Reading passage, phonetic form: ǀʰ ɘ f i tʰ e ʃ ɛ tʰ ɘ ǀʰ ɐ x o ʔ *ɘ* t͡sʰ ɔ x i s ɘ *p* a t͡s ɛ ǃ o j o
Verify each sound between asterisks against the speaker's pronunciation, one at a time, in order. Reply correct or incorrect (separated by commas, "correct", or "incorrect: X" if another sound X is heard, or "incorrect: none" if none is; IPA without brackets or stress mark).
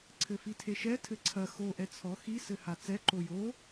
incorrect: ɛ, incorrect: h